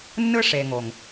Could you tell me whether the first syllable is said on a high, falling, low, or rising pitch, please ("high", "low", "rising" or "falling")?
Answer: high